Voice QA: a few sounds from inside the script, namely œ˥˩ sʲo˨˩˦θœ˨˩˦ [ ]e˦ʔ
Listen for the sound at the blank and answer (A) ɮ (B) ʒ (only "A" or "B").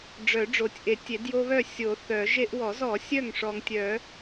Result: B